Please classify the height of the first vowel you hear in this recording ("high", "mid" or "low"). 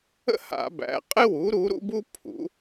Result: mid